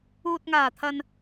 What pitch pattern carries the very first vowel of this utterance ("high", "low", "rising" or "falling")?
low